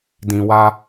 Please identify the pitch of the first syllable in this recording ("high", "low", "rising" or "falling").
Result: low